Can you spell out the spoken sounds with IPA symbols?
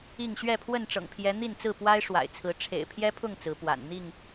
i˥˨ ŋ ɕ ɥ ɛ˥˨ pʰ w ə˥˨ n ʈ͡ʂ ɤ̰˨˩ ŋ pʰ j ɛ˨˦ n̪ i˥˨ n t͡s ɹ̩˥˨ p w a˦ ɪ̯ ʂ w a̰˨˩ ɪ̯ t͡sʰ ɹ̩˨˦ ʈ͡ʂʰ ḛ˨˩ ɪ̯ pʰ j ɛ˦ pʰ ʊ˥˨ ŋ t͡s ɹ̩˨˦ p w a̰˨˩ n n̪ i˥˨ ŋ

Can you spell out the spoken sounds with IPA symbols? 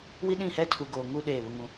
w i˦ ɗ ĩ˦˨ h ɛ˦ tʰ u˨ ɡ oː˨ ŋ u˦ ɗ eː˦˨ β ʊ˦ ŋ ũ˦

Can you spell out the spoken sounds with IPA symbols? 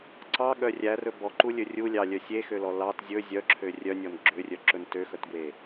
ǀ ɑ ɠ œ rʲ æ r ɵ b ɔ ǃ u lʲ ɵ rʲ u lʲ ɑ lʲ œ sʲ e x ø l ɔ l ɑ t zʲ ɵ zʲ œ ǁʰ ø rʲ œ nʲ ɔ n ɡ͡ǁ ø rʲ œ ǁ ɵ n t ø x œ t ɡ w e

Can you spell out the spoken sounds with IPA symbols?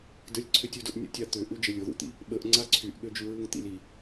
d ə lʲ ǀʰ ʏ tʲ u d ʊ ʔ nʲ ṵ tʲ a t̪ ʏ ʔ u d͡ʒ ə lʲ ʊ ð ṵ t̪ ḭ | ɓ ə ʔ ŋ͡ǀ a ǀʰ y ʔ ɠ ø d͡ʒ y ɹ u ŋ t̪ ḭ l i

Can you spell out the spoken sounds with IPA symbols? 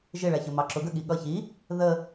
ʒ ɪ ɭ æ ç ə m ɑ ǁ ʊ ɡ ə ɠ i ɠ ʌ ç i | ð ə

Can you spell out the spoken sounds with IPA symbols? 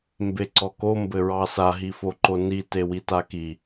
m b e ǀ ɔ k o m b ɘ ɹ ɑ s a ɦ i f o ǃ o n i t e w i t a k i

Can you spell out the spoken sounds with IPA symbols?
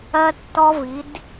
ɜ˧ tː ɔ˧ v i˩˧ d

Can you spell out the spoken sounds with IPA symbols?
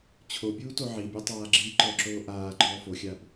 t͡ɕʰ o bʲ uː t o ʕ i bʲ e tˤ aː ɡ͡ǁ iː ǃ ɔ ǁ oː ʔ aː ɡ͡ǃ ɔː f o xʲ a b

